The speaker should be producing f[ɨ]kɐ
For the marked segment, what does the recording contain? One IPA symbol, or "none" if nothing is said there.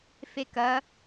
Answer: e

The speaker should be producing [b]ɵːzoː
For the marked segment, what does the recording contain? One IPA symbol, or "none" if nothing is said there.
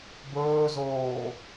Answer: b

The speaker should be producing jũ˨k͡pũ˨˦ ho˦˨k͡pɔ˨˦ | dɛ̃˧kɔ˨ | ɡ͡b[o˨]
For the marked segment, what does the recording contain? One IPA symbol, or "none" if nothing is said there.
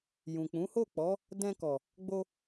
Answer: o˧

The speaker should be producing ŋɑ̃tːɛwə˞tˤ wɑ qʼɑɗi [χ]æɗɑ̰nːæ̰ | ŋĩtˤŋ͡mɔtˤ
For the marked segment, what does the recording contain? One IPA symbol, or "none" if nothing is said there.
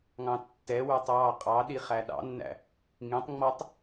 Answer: χ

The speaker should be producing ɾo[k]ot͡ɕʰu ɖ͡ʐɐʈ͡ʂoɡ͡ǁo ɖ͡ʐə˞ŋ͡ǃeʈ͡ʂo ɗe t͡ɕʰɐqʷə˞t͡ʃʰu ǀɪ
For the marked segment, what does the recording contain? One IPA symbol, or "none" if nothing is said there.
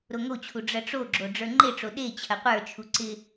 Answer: ŋ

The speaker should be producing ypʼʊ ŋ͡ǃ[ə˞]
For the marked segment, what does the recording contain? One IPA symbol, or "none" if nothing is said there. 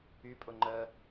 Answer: ə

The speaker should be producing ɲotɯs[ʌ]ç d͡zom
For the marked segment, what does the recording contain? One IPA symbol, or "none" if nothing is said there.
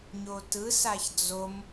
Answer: a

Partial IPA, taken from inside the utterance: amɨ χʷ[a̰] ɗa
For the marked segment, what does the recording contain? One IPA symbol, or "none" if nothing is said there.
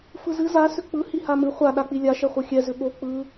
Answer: a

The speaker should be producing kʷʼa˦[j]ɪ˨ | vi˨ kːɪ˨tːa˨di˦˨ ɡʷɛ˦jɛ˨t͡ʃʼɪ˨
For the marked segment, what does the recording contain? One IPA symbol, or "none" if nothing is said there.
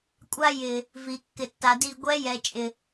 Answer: j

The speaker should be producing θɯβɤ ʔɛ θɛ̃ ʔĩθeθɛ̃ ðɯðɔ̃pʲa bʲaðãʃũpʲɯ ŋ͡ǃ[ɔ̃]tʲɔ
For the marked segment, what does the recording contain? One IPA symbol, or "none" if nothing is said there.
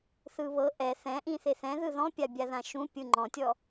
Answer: ɔ̃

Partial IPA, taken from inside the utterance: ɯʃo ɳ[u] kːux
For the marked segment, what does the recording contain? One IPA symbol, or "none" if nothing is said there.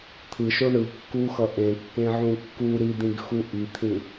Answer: ɯ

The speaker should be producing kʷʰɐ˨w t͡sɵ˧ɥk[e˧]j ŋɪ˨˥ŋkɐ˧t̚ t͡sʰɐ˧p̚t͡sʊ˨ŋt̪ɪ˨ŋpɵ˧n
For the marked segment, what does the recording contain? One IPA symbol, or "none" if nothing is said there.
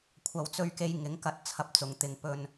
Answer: e˧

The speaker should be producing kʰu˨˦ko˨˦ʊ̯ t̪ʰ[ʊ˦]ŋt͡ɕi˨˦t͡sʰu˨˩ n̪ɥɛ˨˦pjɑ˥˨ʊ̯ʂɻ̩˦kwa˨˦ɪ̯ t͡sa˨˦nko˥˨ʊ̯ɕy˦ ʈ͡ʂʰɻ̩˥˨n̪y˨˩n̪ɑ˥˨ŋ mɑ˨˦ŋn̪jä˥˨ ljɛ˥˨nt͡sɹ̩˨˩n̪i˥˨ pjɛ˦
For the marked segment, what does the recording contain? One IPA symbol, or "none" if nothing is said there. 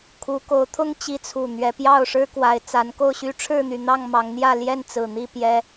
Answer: ʊ˦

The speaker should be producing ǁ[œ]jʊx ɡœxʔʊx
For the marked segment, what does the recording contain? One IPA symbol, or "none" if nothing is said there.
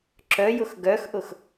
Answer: œ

